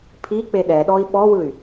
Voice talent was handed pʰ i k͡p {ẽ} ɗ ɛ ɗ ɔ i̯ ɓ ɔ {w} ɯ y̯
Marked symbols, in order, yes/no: no, yes

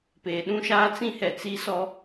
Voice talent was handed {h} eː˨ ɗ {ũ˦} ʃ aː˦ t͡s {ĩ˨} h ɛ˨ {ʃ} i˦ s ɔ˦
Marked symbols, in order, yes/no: no, yes, no, no

